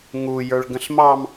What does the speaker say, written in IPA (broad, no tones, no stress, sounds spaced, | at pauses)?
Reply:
ŋ u j ə˞ ɭ ɡ ə̃ ɬ m ɑ m